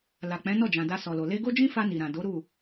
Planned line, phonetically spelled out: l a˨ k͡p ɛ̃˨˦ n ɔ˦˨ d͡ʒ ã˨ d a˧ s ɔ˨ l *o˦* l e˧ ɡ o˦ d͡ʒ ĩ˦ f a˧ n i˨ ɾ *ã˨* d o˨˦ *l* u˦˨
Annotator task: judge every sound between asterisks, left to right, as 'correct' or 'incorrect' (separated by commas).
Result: incorrect, correct, incorrect